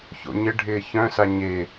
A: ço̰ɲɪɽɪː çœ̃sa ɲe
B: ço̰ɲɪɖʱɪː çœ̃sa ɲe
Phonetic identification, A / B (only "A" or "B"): B